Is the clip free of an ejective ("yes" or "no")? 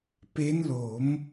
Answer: yes